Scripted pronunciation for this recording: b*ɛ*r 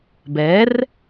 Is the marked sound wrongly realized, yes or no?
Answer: no